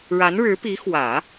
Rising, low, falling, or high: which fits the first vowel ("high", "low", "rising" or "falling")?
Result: rising